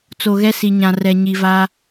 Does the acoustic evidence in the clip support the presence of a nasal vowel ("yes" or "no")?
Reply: yes